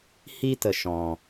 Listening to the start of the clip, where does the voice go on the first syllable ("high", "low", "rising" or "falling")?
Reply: high